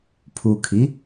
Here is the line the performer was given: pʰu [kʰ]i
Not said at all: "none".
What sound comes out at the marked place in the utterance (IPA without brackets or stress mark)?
kʰ